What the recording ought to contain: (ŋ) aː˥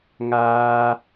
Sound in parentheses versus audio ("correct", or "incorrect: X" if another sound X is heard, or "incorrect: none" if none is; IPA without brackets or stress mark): correct